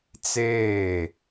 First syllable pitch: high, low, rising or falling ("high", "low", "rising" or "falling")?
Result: falling